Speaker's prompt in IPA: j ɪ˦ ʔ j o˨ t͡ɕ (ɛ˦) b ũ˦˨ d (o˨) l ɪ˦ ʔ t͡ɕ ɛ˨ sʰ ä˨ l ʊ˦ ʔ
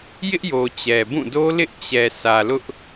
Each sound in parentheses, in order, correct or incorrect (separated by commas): incorrect, incorrect